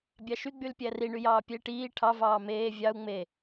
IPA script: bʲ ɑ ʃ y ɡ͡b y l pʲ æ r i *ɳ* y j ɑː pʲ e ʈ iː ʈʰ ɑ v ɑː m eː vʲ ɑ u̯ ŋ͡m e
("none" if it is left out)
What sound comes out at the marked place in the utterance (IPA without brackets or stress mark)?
ɳ